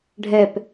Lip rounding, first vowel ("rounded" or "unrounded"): unrounded